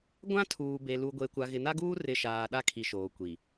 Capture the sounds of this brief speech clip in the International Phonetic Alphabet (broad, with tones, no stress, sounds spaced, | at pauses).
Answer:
ɡʷ ã˦ tʰ uː˨ b e˨ l u˨ ɡʷ e˨ kʷ a˨ ɣ ɪ˨ n a˦ ɡ uː˦ r ɪ˨ ʃ aː˨ ɗ a˦ kʰ i˨ ʃ oː˨ kʷ i˨